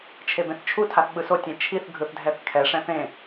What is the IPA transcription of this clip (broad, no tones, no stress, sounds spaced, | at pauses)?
t͡ʃʰ e b ẽ θ t͡ʃʰ u tʰ a θ ɓ ɯ s o tʲ ẽ t͡ʃʰ i θ ɡʱ ɯ θ dʱ ɛ θ kʰ ɛ ʂ ɛ̃ θ ẽ